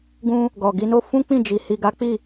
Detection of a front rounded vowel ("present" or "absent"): absent